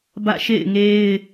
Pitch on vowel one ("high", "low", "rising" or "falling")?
falling